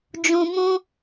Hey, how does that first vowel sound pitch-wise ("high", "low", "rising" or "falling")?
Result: low